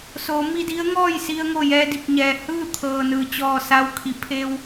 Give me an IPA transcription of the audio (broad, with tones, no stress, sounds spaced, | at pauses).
s oː˩˧ m i˧ d i˧˥ ə̯ ŋ ɔː˥˨ j s i˧ ə̯ ŋ o˧˩ j ɛː˧ d i˧˩ k̚ ɲ ɛː˩ h ɯː˥˨ t̪ʰ ɤː˩ n ɯː˩ t͡ɕ ɔː˧˩ s a˧ w kʰ i˩˧ pʰ e˧ w